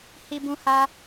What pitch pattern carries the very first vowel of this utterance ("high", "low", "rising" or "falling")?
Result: high